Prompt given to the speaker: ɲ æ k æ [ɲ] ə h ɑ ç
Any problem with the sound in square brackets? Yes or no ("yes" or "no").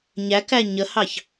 no